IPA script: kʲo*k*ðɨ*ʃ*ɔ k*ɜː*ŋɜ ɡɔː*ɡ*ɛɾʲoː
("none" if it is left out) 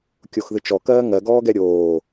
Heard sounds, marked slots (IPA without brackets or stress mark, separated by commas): x, t͡ʃ, ɜː, ɡ